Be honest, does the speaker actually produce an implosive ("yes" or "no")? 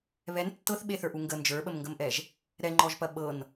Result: yes